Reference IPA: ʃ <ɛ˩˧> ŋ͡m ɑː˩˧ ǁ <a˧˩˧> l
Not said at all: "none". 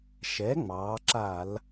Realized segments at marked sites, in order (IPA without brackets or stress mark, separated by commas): ɛ˩˥, a˧˩˧